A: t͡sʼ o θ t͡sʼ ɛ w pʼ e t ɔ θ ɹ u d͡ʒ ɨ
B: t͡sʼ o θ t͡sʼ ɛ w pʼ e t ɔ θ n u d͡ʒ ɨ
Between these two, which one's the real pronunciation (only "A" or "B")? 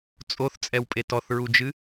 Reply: A